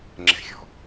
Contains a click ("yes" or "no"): yes